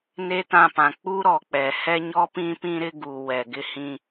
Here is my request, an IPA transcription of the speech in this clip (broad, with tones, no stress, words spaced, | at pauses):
ne˦tã˦˨pã˨ k͡pu˦ ɾɔ˨k͡pɛ˨ hɛ˦ɲɔ˦ pĩ˦pĩ˦ɾɪ˦ɡu˨ wɛ˨ɡɪ˦hĩ˦